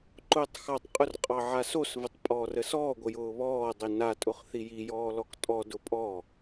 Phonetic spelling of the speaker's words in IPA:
ǃ ʊː tˤ x ɑ tˤ qʼ ʊ r qʼ ɑ ʕ a s o s v ɘ tˤ pʼ ɔː r ə s ɔː ɡʷ ə j ʊː β ɔː dˤ i n a tʼ ʊ χ θ i j i j ɔː l ɔ k tʼ ɔ d ʊ pʼ ɔ

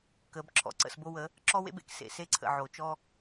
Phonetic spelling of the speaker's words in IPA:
k ə˨˦ b ǁʰ ɔ̰˨ ǀ ə̰˦˨ s b o˦ w ə˨˦ | ǁ ɔ˦ w ḛ˦ b ḛ˦ k s ḛ˨ s e˦ ǀʰ ə̰˨ ʕ o˨ t͡ʃ ɔ˦

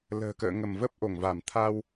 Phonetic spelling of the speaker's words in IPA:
l ə̤ː˨˩ k ə̰ː˧˨ ŋ ə˧˩ m v ə˦˥ p̚ ʔ o˧˩ ŋ v a˧˩ m t̪ʰ a˧ w

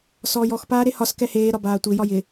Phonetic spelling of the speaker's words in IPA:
s ɔː j ɔ x p aː ɾ e h ɒ s k ɛ h eː ɾ ɒ b aː tʷ ɪ j ɒ j ɪ

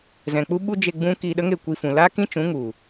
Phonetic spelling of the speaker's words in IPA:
z ɛ̃˨ k͡p u˦ ɓ u˦ d͡ʒ e˧ ɡ͡b ũ˦ k iː˧ ɗ ə˦ ŋ e˦˨ kʷ i˧ f ũ˨ l aː˦ k ĩ˦ t͡ʃ ũ˨˦ ŋ u˨

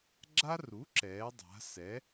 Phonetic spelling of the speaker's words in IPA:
ɡ͡ǁ a˦ r u˩˥ ǁ ɛː˩˥ dˤ a̤˩˥ s ɛ˩˥

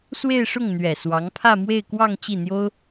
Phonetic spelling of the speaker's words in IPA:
s w e˥˧ ɪ̯ ʂ ʊ˥˩ ŋ n̪ ɥ ɛ˨˩ s w ɑ˧˥ ŋ pʰ ä˥˧ m w e˥˧ ɪ̯ k w ɑ˥˧ ŋ t͡ɕ i˥˩ n̪ j o˥ ʊ̯

